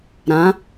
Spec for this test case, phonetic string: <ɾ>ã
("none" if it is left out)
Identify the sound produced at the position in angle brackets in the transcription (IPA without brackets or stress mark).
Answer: ɾ